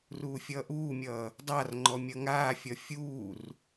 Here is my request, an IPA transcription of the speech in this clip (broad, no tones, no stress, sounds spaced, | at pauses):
r uː fʲ ʌː ʔ uː mʲ ʌː | dˤ a r ŋ͡ǃ ɔ mʲ ʌ ŋ aː fʲ ʌ fʲ uː r